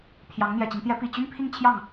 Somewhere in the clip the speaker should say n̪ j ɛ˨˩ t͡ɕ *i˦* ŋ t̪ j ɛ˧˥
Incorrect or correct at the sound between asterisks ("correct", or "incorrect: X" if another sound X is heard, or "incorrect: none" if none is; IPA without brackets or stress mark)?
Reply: correct